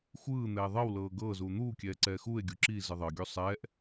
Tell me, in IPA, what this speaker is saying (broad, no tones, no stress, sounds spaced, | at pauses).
xʷ ɯː n̪ ɛː ðˤ ɤ w l ɤː ɡ ɤː z uː n̪ uː kʲ ɛː ǀ ɛː x uː e̯ ɡʲ u ǁ i z ɯ ðˤ ɤ ɡʲ u sˤ ɛː ʔ